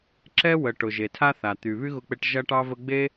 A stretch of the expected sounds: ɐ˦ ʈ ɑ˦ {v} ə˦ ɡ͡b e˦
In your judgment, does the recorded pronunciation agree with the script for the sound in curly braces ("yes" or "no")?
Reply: yes